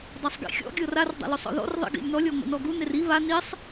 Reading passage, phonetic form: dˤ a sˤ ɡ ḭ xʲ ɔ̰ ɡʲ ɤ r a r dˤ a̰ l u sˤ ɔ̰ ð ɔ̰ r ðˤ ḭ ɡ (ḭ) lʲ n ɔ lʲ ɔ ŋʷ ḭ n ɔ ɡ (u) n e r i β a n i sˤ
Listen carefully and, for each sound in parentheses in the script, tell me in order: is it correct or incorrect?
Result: correct, correct

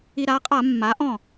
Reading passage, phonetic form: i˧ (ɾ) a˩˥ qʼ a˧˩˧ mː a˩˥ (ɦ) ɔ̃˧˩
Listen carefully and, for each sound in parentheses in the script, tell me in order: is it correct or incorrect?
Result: correct, incorrect: ʔ

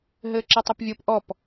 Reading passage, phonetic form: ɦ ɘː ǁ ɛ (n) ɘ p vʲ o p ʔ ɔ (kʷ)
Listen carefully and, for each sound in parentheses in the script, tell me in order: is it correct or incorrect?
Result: incorrect: tˤ, incorrect: p

